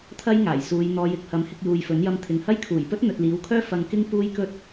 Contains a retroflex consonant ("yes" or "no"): no